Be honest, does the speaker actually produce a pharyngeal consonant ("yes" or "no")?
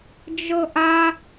no